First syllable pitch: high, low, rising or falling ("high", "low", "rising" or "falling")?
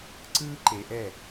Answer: high